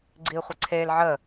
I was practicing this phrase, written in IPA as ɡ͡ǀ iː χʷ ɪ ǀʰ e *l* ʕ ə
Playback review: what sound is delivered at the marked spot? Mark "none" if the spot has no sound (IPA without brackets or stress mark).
l